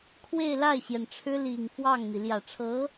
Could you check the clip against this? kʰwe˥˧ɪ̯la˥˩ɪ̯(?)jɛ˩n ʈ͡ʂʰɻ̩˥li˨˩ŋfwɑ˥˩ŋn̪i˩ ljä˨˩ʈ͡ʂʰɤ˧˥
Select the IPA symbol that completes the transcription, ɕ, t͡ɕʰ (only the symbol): ɕ